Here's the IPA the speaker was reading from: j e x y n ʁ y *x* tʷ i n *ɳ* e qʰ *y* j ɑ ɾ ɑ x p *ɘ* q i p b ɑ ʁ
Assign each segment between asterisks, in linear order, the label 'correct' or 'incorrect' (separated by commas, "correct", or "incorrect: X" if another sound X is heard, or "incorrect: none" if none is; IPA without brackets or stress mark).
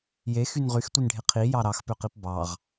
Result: correct, incorrect: ɖʱ, incorrect: i, incorrect: ø